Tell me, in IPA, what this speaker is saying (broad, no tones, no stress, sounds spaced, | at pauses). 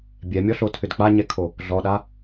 bʲ ɛ mʲ ɔ ɬ o tʰ ʏ d k͡p a ɲ ɛ kʰ o | ɮ ɔ ɗ a